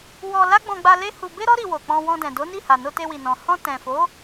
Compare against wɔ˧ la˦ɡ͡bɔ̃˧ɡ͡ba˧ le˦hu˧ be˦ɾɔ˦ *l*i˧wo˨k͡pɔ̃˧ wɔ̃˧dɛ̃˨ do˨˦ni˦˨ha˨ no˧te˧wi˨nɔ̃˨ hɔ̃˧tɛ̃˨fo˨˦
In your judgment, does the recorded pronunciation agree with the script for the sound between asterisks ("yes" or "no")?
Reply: no